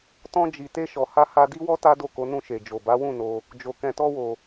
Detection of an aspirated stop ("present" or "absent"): absent